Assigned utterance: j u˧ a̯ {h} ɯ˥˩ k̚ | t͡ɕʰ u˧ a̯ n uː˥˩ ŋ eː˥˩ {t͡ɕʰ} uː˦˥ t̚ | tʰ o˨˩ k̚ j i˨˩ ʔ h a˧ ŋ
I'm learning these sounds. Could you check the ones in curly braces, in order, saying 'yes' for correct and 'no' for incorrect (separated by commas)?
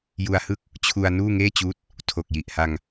yes, no